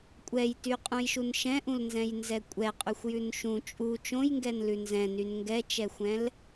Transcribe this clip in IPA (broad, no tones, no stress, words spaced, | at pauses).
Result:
kʷʼɛjtyqʼũjʃun ʃɛ̃ʔũlnzɛ̃jnzɛ kʷʼɛqʼyxʷjʉn ʃũ t͡ʃʼu t͡ʃõjŋɡɛnlʉ nzɛ̃nyn ŋɡɛt͡ʃɛxʷɛ̃l